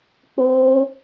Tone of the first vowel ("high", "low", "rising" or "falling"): high